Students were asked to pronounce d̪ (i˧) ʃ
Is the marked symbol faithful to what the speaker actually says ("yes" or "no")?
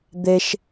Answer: no